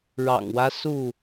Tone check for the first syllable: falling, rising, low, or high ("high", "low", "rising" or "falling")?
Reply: low